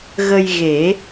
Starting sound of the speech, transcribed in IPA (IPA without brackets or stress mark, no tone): ɣ